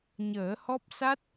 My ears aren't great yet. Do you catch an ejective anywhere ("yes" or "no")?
no